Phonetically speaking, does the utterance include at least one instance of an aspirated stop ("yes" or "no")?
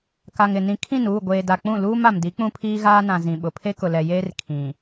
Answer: yes